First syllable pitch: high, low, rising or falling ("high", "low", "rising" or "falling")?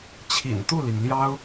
low